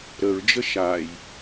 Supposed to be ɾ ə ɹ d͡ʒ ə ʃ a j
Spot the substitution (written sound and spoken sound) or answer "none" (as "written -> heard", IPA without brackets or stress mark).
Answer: none